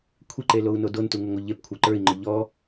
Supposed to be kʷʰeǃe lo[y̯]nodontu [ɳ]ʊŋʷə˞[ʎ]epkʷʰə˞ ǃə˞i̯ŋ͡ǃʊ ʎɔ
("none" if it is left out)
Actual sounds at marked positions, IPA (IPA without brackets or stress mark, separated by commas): u̯, ŋ, ʎ